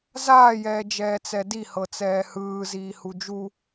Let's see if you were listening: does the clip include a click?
no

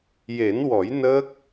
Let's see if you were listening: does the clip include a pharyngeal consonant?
no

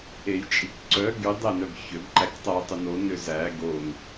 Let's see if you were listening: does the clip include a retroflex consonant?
no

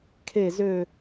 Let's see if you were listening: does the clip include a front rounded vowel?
yes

